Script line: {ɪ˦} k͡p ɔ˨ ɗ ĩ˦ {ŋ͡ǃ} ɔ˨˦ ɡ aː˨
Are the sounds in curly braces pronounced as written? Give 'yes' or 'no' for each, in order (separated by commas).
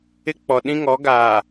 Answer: yes, no